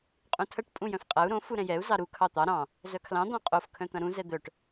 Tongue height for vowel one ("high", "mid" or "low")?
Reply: high